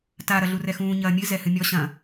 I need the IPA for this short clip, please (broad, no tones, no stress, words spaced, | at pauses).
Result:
ta ɾɐɮurɛxũː ɲɐːmʲɨ zɛhɨmʲɔ ɕɐ̃